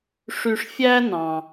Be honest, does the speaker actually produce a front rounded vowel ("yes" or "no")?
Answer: yes